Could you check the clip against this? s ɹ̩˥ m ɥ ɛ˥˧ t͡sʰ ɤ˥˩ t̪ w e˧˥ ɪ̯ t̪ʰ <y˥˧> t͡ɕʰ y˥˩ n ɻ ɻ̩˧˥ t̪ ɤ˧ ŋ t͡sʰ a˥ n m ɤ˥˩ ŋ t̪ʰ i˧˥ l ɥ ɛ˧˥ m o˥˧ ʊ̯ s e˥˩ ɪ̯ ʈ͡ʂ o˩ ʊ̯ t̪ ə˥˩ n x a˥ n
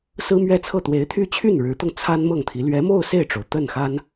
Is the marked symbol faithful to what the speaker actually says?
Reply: yes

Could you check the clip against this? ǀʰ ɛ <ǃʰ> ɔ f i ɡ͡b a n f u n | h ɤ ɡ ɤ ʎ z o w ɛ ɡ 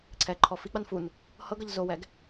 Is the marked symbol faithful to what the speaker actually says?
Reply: yes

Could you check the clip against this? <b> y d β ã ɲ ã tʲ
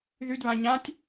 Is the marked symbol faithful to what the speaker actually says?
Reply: no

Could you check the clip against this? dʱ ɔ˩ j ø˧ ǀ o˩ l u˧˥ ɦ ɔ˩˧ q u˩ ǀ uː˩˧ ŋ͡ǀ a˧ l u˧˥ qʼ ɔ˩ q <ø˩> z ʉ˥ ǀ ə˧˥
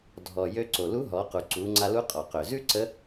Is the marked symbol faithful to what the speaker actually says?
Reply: yes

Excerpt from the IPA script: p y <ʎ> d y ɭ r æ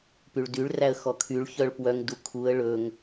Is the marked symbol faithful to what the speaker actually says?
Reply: no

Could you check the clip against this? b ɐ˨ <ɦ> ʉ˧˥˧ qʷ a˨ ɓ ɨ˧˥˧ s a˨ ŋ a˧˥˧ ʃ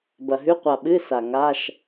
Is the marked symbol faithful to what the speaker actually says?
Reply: yes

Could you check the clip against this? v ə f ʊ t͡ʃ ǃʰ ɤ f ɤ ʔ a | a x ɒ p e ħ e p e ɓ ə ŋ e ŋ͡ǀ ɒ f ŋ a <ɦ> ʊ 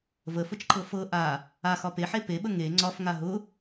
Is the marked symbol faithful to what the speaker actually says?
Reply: yes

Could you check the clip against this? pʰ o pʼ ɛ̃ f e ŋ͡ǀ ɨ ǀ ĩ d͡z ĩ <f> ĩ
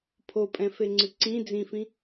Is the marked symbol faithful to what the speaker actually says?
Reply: yes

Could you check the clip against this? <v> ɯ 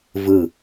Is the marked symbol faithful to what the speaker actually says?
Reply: yes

